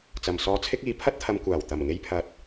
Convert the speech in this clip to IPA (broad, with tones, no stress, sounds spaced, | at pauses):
t͡s ɐ˨ m s ɔː˧ t͡sʰ ɪ˥ k̚ iː˨˥ pʰ ɐ˥ t̚ t̪ʰ ɐ˧ m kʷ aː˨˩ w t̪ ɐ˨˩ m ŋ e˧ j pʰ ɐ˨ t̚